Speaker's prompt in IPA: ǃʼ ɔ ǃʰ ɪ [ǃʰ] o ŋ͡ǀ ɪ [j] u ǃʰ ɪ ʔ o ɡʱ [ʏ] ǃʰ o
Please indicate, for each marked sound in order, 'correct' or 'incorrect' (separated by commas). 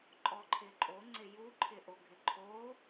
incorrect, correct, incorrect